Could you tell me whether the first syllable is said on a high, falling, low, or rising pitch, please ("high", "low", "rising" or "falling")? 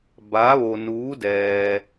rising